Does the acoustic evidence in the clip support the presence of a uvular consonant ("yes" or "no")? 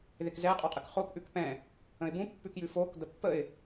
yes